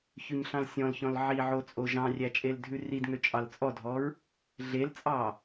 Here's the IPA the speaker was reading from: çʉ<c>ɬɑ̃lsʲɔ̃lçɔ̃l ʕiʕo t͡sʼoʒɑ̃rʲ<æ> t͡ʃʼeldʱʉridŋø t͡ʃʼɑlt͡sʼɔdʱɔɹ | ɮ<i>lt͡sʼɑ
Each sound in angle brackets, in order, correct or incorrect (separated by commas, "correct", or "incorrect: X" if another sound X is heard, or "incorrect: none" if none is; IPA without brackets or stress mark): incorrect: ɲ, correct, incorrect: e